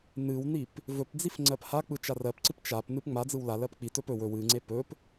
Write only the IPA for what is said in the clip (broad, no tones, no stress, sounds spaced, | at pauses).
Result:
n ɨ w n i p | v ɵ p d͡z i f ŋ͡ǀ ɜ p h a k͡p ɯ t͡ʃ a r ɜ p ǀ ɨ p t͡ʃ a p n ɨ p ŋ͡m a d͡z ɯ w l a l ɜ p k͡p i t ɵ p ɵ w ɵ w ɨ ŋ͡ǀ e p ɵ p